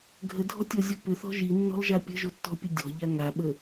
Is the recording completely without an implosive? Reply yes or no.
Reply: no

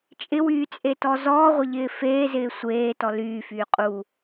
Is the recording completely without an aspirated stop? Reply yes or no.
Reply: yes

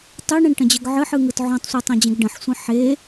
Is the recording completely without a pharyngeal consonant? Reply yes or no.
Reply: no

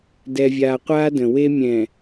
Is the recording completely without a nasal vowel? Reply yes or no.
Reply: no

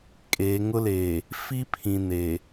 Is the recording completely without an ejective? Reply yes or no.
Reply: no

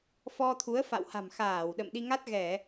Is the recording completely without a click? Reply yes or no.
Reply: yes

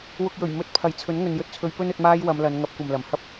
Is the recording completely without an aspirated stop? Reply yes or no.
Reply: no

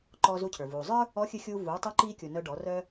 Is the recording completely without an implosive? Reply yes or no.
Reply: yes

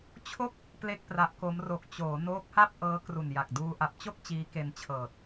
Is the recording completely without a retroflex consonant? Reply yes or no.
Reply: yes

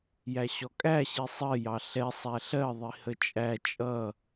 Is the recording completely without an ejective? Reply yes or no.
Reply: no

